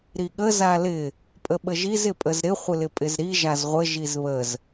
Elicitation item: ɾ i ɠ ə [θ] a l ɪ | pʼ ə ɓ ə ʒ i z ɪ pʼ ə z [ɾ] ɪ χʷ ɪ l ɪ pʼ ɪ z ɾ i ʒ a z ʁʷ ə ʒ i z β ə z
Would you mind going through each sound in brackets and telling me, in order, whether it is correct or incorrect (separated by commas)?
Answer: incorrect, correct